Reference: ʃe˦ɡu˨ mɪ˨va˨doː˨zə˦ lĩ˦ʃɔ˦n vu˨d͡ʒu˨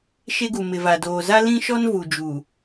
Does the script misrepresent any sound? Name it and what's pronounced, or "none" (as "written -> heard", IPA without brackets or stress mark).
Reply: ə˦ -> a˦